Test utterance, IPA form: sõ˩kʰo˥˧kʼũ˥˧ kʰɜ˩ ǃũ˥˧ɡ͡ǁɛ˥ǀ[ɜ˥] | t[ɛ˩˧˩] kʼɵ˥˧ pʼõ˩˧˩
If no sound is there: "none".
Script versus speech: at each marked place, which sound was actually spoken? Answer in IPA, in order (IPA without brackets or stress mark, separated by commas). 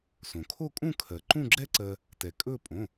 ɜ˧, ɛ˩